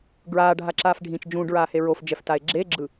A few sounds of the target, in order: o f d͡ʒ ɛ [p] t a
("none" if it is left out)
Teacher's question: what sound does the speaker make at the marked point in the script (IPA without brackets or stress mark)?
f